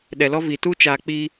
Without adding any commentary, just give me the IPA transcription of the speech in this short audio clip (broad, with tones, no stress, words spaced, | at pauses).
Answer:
ɗɛ˨lɔ˦vi˨ tu˦ t͡ʃaː˨k͡piː˧